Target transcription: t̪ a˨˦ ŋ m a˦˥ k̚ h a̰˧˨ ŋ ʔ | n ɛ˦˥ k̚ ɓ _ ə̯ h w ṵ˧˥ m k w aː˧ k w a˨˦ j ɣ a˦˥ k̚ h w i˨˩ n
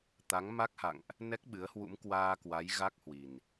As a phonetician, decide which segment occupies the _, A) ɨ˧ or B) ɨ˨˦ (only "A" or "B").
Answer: B